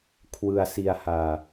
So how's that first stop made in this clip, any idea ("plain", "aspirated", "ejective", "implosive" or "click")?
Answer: aspirated